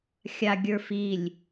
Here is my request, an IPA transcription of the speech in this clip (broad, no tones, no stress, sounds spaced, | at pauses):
xʲ a ɡʲ ə˞ f i lʲ